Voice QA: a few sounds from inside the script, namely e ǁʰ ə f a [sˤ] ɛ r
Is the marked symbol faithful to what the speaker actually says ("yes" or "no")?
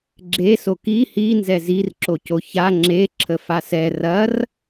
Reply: no